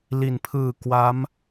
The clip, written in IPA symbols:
l i˩˦ n pʰ ɯː˨˩ k w a˦˥ m

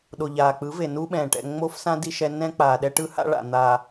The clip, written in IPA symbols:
ɗ o˨ ʎ aː˨ k͡p ɯ˨˦ v e˨ n u˦ ɓ ɛ̃ː˨ ʈ ɛ̰˨ ŋ͡m o˦ f s ã˦ d i˦ ʃ ɛ˦ n ɛ̃˦ k͡p aː˨ ɗ ɛ˦ ʈ ɯ˦ h a̰˦ ɭ a̰˨ n̪ a˨

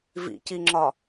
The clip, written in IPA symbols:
v ḭ c i ŋ͡ǁ ɒ

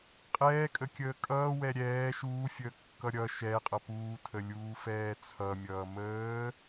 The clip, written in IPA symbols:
qʼ ɛː kʼ ə kʲ əː kʼ ʌː w ɛ ɾʲ ɛː ʃ uː fʲ əː kː ʌ ɾʲ ʌ ʃ ɛ qʼ ʌ p uː tʰ ə lʲ uː f ɛː t͡sʰ ʌ mʲ ʌː m əː

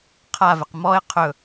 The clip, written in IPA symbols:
qʰ a v ɪ q m ɔ ɪ̯ qʰ ɵ

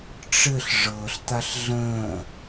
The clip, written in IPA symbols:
ʈ͡ʂ ɘ ɬ ʐ ɤ ɬ t̪ a ɬ ɮ ə̃ː

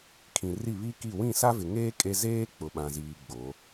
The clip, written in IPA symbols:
kʰ ĩ˨ r i˦˨ β i˦ k i˦˨ w ĩ˦˨ s a˦ v ɪ˨ ŋ eː˦ kʼ e˦ z eː˦ k͡p ʊ˨ ɓ ã˨ z iː˨ ɡ͡b o˨˦

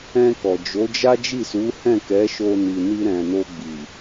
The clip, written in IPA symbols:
ɛ̃˧ k ɔ˨ d͡ʒ o˨˦ d͡ʒ a˦ d͡ʒ i˦˨ s u˨˦ h ɛ̃˦˨ k ɛ˨˦ ʃ o˧ n i˨ n i˧ ɾ ɛ̃˨ n o˧ ɡ͡b i˨

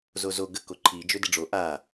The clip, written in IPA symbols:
z o z o ɡ ə k o ǃʰ i d͡ʒ ø d ə ɖ͡ʐ o ʔ a

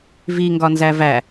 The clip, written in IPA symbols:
v i ŋ ɡ ɒ n z æ v æ

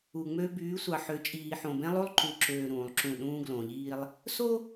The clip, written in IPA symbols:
u˨ ŋ͡m ø˦ b yː˨˦ sʷ ɑ˨ ħ ø˨ t͡ʃʼ iː˨ ħ õ˨ b ẽ˦ lˠ u˦ lˠ ǃ u˨ ǁ øː˨ ɾ ũː˨ lˠ ǁ ũ˦˨ ɗ ũː˦ ɡ l õ˨ ʎ iː˦ lˠ | s o˦

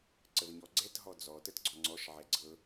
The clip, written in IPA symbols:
ǀ ə v ɲ ɔ ɡ͡ǀ ɛ t ɦ ɔ d͡z ɔ t ə t ɡ͡ǀ ɔ ŋ͡ǀ ɔ ʃ ʕ ɛ ɡ͡ǀ ɤ

